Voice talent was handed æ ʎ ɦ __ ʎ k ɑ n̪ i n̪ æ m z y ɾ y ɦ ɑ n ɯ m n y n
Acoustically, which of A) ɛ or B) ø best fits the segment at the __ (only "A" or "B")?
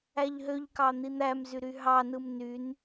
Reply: B